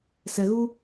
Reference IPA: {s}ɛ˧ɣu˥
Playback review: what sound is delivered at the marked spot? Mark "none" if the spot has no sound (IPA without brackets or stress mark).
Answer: s